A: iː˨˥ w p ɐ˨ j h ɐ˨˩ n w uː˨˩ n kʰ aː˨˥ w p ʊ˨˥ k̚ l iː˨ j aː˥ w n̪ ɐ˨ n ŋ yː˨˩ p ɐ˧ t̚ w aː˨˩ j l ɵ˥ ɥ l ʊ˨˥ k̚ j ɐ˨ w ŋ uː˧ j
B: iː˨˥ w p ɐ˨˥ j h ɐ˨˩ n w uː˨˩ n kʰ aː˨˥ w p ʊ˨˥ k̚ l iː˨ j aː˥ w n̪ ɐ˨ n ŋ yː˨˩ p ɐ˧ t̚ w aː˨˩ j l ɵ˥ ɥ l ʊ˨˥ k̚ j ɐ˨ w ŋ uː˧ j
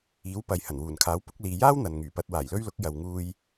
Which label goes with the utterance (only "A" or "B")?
A